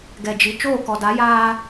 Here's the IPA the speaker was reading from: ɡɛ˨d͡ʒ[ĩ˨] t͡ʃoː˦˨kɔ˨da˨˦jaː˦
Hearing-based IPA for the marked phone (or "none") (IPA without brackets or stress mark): i˨